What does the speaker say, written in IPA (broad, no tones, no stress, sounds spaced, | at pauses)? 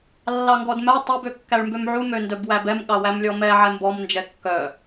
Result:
lː ɑ ŋ ɡ ɔ d m æ tˤ ø b ø kː æ ɭ m b ø m ʕ u m ø n d œ b w æ b ɛ m ɠ ɑ w æ m lʲ ɔ m ɛ ʕ ɛ m b ɔ m n d͡ʒ ɛ kː œ